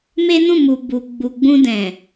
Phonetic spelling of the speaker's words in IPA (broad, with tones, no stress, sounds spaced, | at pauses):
m e˦ n ũ˦˨ m u˨ b u˨ ɡ͡b u˨ ɡ͡b ũ˧ d ɛ̃˨